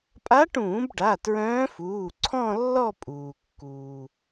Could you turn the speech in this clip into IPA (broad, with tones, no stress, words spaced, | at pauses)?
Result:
pʼa˧˥ʈũː˧˩˧b ɖa˩˧˩tɹœ̃ː˧˥fuː˩˧˩ ǀʰɔ̃˥˧lːɔ˥˧ pʼuː˩kːuː˩